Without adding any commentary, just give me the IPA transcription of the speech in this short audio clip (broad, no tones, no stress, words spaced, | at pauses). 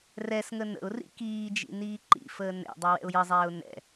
rɛsŋə nə̰ʊ̯rḭ kiːd͡ʒḭ niːǃḭfəː nɛ̰dˤə wɛ̰ʊ̯jəzˤɛːʊ̯ nɛ̰